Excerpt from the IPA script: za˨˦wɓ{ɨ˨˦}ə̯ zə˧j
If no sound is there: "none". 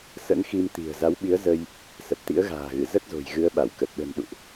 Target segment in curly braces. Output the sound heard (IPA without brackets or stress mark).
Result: i˨˦